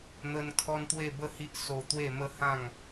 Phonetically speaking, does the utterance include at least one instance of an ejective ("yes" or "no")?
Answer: no